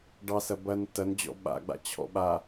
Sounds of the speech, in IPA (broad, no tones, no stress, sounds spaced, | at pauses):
ɖ ɑ s ɐ b ɐ n t ɐ n d͡ʑ ɔ̰ ɓ a̰ ɡ͡b a̰ t͡ɕʰ ɔ̰ ɓ a